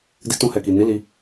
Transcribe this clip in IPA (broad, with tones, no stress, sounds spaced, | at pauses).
d i˧ t ũ˧ h ɛ˨ k i˨ n i˨˦ l i˧